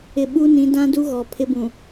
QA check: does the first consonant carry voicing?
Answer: yes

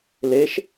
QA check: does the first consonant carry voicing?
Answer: yes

